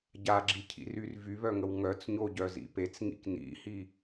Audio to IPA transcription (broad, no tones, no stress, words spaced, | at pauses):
ɟaɡ͡ǁicʰḭryr vyβœŋəw ŋœt͡sɲoɟœzḭ pet͡sŋḭk nḭhi